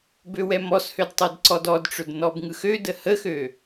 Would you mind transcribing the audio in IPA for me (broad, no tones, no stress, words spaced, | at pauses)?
bøwɛmɔshød tˤødǀɔdɔdʈ͡ʂɵd nɔbŋɯxødə həxø